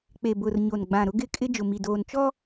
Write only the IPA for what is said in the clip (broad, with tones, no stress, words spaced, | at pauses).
k͡pe˨bʊ˨r ɲo˨nɡ͡bã˨ ɾʊ˦ɡɪ˦kʼɪ˦ d͡ʒʊ˨mi˨doː˨n t͡ʃɔ˦